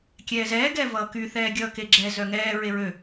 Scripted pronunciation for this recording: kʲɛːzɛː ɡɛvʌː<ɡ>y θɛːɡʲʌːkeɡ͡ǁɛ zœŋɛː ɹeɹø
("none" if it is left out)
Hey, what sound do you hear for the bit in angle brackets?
k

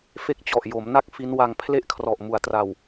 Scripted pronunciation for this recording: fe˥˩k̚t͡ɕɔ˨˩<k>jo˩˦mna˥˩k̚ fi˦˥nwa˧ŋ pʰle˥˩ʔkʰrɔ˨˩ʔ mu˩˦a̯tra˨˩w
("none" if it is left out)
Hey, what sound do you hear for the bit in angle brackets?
ʔ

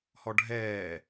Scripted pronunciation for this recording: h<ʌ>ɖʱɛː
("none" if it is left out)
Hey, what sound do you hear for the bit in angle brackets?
ɔ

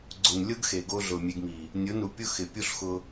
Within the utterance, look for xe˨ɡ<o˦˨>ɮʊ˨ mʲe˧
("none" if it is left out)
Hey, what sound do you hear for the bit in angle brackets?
o˧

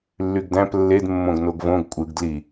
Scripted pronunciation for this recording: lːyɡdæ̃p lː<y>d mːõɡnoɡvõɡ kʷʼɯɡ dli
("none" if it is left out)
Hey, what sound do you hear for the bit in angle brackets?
e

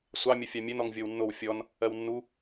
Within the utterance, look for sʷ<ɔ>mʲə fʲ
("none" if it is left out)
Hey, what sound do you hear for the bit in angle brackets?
ɑ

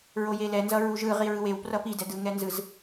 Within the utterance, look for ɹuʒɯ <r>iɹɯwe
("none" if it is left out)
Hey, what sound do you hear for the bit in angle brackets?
ʁ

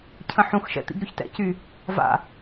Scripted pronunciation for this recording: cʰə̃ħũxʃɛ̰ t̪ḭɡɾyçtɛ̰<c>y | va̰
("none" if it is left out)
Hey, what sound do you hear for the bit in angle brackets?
c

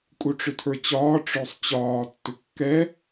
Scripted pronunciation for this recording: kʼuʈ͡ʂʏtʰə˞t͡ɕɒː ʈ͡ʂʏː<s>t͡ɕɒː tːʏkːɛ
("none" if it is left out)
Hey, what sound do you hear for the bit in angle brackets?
sˤ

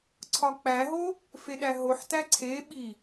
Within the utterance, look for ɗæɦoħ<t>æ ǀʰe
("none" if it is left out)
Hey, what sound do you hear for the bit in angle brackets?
t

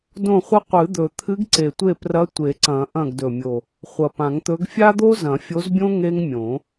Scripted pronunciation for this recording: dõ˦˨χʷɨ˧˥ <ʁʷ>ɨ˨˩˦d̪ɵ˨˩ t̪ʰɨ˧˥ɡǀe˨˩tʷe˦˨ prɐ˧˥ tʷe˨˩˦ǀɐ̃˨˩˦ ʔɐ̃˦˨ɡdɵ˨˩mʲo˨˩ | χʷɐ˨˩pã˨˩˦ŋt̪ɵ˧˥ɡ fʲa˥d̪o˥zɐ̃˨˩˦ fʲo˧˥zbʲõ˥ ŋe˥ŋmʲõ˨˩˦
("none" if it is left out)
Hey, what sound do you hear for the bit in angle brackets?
qʷ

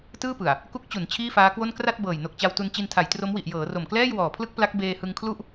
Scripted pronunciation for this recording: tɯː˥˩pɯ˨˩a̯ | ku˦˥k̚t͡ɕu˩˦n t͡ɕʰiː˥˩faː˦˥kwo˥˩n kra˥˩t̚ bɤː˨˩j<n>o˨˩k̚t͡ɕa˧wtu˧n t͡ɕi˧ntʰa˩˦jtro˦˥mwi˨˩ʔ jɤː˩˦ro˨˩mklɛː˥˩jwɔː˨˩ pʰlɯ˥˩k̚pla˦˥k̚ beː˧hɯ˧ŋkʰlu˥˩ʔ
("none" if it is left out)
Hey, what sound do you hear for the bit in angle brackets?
n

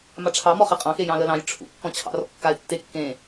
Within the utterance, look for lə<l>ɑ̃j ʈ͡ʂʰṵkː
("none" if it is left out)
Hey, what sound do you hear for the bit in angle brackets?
l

